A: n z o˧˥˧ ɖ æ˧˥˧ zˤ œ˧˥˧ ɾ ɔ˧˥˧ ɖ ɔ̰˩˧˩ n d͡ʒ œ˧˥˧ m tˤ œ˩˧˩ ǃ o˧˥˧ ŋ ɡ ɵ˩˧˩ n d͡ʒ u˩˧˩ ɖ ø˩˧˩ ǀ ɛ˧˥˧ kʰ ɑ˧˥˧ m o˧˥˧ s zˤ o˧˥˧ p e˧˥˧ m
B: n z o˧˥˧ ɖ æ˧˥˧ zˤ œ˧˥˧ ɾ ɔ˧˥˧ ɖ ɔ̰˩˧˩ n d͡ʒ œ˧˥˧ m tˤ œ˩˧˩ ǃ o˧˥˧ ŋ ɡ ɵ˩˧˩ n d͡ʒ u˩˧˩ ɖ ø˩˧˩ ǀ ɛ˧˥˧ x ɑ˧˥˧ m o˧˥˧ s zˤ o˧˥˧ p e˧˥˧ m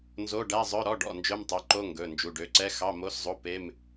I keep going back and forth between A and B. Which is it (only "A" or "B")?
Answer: B